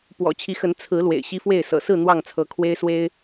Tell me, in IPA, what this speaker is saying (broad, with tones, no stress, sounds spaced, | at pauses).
p w ɔ̰˨˩ t͡ɕʰ i˨˦ x ə˨˦ n t͡sʰ ɹ̩˨˦ l w ḛ˨˩ ɪ̯ ɕ i˦ f w e˥˨ ɪ̯ s ɤ̰˨˩ s ɹ̩˥˨ n̪ w ɑ˥˨ ŋ t͡sʰ ɤ˨˦ kʰ w e˦ ɪ̯ s w e˦ ɪ̯